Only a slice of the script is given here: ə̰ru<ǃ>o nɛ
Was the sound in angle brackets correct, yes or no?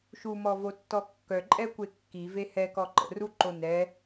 yes